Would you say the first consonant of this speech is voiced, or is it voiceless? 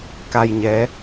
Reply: voiceless